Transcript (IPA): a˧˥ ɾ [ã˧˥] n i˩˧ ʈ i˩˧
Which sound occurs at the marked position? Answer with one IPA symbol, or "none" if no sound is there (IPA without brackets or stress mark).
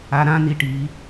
ã˧˥